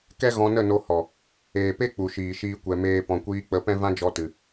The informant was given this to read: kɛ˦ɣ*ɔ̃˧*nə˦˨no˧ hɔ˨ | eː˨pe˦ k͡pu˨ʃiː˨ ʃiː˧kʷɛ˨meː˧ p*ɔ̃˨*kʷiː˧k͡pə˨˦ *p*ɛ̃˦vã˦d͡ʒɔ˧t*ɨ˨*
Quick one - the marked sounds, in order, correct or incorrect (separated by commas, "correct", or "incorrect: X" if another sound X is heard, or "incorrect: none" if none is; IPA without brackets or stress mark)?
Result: correct, correct, correct, correct